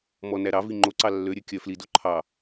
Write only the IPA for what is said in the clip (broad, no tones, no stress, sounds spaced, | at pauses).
m ɔ n æ ɾ ɑ v i ŋ͡ǃ o ǀ ɑ lː ø ɾʲ ø kʲ œ f l i d o ǃʰ ɑ